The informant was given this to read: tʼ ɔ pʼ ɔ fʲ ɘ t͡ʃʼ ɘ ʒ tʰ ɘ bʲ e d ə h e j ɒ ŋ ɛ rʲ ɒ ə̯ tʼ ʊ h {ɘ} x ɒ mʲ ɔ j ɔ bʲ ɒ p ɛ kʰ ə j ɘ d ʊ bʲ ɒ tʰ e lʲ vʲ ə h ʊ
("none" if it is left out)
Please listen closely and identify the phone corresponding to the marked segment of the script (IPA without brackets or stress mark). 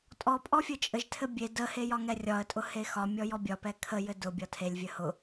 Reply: e